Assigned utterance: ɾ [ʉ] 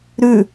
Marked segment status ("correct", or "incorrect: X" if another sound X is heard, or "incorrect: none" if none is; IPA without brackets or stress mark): correct